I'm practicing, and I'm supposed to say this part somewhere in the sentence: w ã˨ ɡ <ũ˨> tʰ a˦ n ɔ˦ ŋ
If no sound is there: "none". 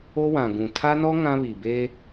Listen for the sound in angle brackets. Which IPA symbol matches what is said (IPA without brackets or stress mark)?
ũ˨